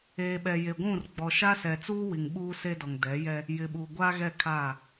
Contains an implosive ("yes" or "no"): yes